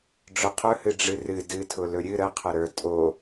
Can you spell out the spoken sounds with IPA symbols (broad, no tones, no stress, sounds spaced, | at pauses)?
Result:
ɖ͡ʐ ʊ qʰ ɵ h ɨ ɖ͡ʐ ɨ r ɨ d ɨ tʰ ʊ l ɵ ɾʲ ɨ ɾ ə qʰ ə ɾ ə˞ tʼ o